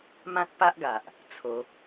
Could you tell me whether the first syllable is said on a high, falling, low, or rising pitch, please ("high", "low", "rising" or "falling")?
high